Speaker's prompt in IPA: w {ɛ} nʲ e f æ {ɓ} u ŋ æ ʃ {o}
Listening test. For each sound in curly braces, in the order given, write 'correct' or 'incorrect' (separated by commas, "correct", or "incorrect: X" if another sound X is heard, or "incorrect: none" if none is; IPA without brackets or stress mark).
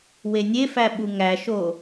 incorrect: e, correct, correct